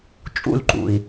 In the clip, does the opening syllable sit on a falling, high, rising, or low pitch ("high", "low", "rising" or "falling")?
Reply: falling